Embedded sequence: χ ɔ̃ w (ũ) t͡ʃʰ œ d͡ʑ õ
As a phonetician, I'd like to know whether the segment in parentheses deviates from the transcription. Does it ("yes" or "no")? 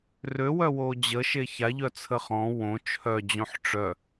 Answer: yes